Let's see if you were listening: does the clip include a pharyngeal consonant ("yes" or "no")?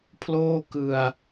no